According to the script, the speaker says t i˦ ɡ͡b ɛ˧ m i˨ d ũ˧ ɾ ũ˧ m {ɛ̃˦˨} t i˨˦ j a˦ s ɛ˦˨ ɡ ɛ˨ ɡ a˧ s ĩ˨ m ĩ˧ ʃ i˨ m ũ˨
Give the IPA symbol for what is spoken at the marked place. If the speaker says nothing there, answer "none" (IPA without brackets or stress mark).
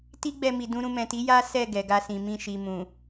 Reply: ɛ̃˨